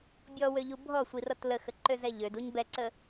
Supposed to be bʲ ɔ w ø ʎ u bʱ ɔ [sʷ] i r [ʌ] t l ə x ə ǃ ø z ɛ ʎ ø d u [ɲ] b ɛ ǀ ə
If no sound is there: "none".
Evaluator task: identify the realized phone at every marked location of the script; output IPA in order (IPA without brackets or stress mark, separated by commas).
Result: sʷ, ʌ, ɲ